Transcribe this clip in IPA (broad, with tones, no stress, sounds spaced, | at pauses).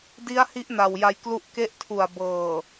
d i˦˥ a̯ h i˦˥ ʔ n a˨˩ w j a˧ j k l u˦˥ ʔ k e˦˥ ʔ tʰ u˨˩ a̯ b ɤː˨˩